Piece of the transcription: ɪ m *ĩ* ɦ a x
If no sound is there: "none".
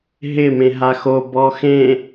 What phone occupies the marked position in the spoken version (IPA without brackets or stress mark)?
ẽ